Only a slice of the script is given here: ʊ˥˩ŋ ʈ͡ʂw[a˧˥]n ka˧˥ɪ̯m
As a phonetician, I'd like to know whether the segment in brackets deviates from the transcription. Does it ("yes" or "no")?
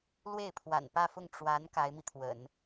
no